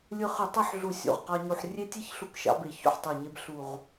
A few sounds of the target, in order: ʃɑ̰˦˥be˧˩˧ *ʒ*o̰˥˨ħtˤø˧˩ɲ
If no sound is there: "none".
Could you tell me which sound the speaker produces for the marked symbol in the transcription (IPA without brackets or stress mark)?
ç